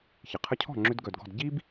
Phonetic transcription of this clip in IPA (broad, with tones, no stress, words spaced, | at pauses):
çɪ˩qʰə˧cʰɔ̤˥˩ ŋ͡ǁʏ˧dɡœ˩dɡɔ̤˥˩d ɟi˥b